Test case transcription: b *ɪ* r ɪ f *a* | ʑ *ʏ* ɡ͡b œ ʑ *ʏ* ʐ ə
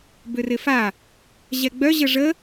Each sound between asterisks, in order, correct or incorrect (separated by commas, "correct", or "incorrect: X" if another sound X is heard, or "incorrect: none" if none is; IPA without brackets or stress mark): incorrect: ʏ, correct, incorrect: ɛ, incorrect: ə